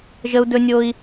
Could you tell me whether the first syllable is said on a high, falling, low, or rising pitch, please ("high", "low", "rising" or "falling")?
high